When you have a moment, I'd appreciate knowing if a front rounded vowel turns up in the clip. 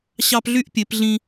yes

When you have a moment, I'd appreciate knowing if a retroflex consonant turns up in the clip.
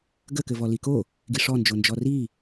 yes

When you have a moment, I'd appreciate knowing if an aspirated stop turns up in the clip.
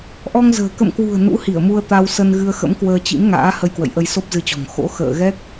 no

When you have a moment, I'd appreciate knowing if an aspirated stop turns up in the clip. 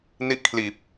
yes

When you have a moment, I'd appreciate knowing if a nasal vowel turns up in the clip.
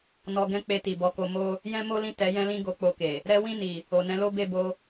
yes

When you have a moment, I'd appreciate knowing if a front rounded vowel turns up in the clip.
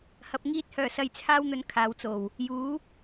yes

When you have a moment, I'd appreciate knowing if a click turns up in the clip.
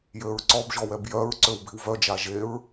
yes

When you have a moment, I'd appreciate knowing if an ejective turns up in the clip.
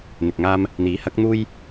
no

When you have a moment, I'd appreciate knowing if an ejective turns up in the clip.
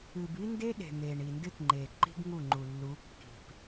no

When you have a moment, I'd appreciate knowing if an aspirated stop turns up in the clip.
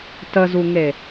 no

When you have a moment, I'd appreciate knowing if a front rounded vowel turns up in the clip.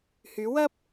yes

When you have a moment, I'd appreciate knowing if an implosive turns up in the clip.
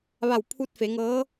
no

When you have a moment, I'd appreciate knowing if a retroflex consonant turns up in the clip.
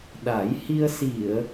no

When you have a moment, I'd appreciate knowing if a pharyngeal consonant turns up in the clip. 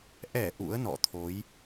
no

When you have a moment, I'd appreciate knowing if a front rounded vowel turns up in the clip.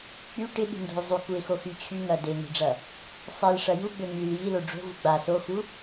yes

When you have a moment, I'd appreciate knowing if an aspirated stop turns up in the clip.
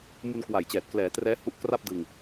no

